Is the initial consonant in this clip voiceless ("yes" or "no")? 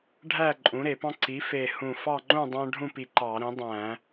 no